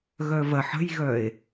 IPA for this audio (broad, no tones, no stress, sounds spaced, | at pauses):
ɣ œ v ɐ ħ ə̤ j ɣ œ e̯